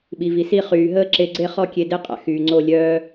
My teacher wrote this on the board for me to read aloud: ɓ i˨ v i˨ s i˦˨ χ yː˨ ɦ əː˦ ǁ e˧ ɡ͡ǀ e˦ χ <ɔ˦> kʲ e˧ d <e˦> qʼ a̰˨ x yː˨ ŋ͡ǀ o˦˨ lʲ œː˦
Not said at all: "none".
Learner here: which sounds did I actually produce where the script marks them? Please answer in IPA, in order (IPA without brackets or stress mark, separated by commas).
ɔ˦, e˦